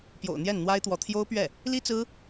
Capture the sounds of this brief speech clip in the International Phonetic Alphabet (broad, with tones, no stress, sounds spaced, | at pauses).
p j o̰˨˩ ʊ̯ n̪ j ɛ˥˩ n n̪ w a˥ ɪ̯ t̪ w ɔ˧˥ t̪ʰ j o˥ ʊ̯ p ɥ ɛ˥˩ | l i˥ t͡s ɹ̩˥